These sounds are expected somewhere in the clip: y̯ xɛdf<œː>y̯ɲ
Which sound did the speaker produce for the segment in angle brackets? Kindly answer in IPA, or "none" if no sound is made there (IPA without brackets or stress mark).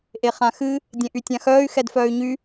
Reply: œː